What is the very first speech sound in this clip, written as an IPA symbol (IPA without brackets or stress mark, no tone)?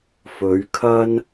f